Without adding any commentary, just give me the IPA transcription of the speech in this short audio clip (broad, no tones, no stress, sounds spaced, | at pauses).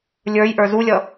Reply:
lʲ ə˞ j ʔ ə˞ z u lʲ ʌ